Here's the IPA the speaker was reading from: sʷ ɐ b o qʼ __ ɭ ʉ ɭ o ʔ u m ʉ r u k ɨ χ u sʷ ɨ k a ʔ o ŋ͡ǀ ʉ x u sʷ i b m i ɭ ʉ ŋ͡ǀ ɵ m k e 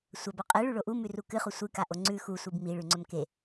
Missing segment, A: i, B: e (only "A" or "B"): B